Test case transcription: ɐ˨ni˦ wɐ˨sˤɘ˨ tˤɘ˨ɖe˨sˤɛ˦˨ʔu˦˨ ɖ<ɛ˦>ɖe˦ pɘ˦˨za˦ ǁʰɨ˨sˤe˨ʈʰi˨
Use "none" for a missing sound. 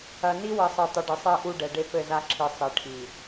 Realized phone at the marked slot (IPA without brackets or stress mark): ɛ˨